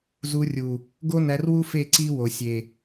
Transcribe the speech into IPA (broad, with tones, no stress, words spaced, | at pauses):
zu˧rʲu˨ | ɡo˦næ˧rwu˦ fe˦˨ǀi˦wo˨ sʲe˨